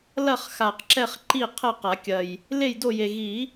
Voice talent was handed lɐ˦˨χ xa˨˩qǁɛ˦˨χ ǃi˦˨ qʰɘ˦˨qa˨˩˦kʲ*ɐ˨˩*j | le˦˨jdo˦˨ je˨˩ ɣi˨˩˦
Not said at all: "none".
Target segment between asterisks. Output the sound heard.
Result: ɐ˨˩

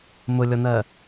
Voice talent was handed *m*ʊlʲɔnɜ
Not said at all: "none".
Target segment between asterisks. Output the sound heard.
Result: m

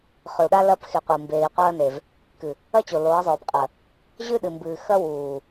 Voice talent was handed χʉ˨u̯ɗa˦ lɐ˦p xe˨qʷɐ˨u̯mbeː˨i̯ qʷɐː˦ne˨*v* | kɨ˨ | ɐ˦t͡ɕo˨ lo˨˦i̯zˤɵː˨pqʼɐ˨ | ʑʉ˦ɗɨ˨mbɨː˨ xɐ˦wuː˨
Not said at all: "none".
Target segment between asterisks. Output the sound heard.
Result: v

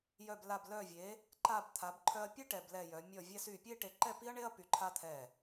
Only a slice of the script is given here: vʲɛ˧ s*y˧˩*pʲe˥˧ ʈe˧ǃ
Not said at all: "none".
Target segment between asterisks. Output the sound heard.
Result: y˧˩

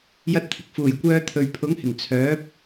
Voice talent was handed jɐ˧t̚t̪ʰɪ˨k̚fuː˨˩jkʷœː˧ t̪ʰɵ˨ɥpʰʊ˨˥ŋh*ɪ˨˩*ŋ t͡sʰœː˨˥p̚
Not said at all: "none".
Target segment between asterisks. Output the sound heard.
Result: ɪ˨˩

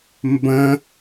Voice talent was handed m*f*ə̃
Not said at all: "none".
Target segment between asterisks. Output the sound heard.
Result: b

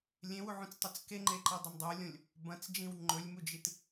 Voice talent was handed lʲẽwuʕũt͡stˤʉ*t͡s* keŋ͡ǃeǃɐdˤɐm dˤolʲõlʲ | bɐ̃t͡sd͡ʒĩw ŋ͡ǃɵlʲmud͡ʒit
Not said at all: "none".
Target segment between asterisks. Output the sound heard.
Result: t͡s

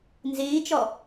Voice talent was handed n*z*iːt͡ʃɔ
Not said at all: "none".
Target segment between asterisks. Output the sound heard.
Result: z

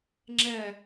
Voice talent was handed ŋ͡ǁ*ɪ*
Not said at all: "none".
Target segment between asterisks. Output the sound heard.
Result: ɛ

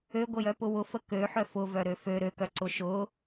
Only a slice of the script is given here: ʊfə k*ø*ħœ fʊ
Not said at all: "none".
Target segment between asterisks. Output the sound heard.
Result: ø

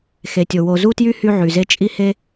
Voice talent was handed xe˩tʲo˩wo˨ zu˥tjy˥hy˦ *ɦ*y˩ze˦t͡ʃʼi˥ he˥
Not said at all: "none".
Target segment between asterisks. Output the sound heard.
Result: ʕ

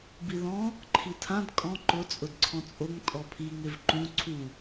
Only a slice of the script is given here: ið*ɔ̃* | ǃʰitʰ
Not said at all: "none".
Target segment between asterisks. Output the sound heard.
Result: ɔ̃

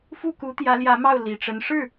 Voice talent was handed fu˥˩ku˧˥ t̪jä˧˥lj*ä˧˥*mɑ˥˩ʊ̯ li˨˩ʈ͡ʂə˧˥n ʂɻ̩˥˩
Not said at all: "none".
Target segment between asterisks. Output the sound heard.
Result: ä˧˥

